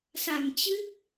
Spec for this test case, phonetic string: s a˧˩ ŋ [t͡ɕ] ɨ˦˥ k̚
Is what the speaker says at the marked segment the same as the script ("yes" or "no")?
yes